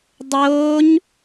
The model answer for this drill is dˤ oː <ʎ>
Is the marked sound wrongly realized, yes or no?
yes